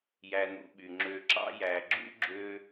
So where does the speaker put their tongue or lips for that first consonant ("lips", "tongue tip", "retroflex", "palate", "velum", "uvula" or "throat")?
palate